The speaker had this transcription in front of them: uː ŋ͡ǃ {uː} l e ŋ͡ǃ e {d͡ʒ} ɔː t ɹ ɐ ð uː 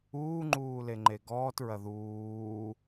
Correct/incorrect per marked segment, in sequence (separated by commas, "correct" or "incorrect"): correct, incorrect